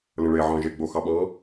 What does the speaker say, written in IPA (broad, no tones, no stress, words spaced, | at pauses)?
lə̃ɭeʕɑ̃ ʒeɡ͡boxɑ ɓɑ̃